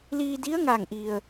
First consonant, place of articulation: alveolar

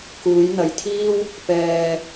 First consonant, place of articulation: velar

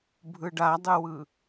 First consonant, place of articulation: labial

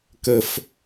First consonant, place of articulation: velar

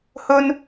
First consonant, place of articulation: glottal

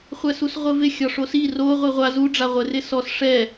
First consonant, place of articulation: uvular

